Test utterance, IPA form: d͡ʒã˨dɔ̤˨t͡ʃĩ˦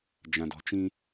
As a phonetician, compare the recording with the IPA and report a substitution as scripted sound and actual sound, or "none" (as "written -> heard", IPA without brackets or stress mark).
none